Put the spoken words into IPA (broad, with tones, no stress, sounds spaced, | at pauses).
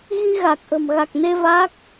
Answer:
ɣ i˧ ɣ a˨˩ k̚ ʔ ə̤˨˩ m ɣ a˨˩ k̚ n e˧ v a˦˥ k̚